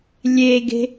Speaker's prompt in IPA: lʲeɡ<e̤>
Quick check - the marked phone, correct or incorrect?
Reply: correct